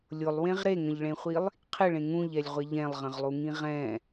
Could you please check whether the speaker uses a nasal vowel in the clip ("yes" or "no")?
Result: yes